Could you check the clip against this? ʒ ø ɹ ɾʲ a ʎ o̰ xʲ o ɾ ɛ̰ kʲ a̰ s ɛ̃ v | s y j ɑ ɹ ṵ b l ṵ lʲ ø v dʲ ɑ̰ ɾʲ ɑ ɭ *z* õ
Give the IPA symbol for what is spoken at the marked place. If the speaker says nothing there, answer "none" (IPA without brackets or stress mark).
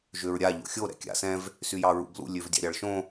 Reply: ʃ